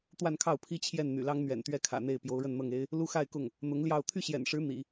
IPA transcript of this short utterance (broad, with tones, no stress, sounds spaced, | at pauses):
t̪ w a˥˧ n kʰ ɑ˥˩ ʊ̯ pʰ i˥ t͡ɕʰ j ɛ˥˩ n n̪ y̰˨˩ l ɑ˥ ŋ n̪ ɥ ɛ̰˨˩ n t̪ ɥ ɛ˥˩ kʰ ä̰˨˩ n̪ e˥˩ ɪ̯ p j o˧˥ ʊ̯ ɻ ə˥˧ n n̪ ɤ˥˩ ŋ e˥ ɪ̯ | l u˥ x a˥˧ ɪ̯ k ʊ˥˩ ŋ | n̪ ʊ˧˥ ŋ l j ɑ˥˧ ʊ̯ t̪ʰ y˥˩ ɕ j ɛ̰˨˩ n ʂ ɻ̩˧˥ n̪ ḭ˨˩˦